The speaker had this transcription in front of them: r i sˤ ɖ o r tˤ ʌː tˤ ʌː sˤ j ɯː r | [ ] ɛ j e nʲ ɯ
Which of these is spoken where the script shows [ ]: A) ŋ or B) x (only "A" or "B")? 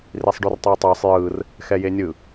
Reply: B